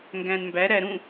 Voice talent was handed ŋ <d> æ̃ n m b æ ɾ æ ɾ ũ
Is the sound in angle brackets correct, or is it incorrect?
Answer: incorrect